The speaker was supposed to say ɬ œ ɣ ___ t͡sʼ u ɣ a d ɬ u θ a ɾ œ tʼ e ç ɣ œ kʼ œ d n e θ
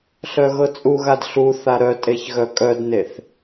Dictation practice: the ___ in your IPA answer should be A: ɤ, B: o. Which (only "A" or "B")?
A